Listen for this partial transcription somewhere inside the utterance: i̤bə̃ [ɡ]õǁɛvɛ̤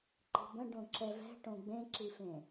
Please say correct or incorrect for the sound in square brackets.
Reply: incorrect